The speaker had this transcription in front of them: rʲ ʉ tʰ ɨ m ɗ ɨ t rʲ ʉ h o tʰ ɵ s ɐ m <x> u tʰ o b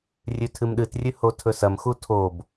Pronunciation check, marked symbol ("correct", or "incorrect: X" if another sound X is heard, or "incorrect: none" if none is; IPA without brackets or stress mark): correct